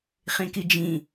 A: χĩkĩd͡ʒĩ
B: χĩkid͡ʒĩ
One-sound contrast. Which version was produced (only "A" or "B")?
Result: B